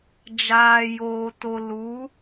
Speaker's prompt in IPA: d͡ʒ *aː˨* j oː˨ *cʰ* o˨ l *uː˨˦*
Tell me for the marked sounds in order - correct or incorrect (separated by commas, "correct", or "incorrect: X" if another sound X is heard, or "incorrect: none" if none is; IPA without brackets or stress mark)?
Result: correct, incorrect: t, correct